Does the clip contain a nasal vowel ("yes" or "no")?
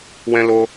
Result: yes